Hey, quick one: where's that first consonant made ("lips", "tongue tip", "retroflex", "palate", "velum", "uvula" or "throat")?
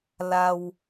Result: tongue tip